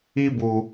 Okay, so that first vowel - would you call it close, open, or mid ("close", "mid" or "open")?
close